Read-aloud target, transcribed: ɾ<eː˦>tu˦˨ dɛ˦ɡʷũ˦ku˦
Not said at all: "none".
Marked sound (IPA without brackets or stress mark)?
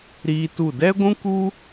iː˦